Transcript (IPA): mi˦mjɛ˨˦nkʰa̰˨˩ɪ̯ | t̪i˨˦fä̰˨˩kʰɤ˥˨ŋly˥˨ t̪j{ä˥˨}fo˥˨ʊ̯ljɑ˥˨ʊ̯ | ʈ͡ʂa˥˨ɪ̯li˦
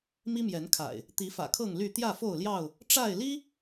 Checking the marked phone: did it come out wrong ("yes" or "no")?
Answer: no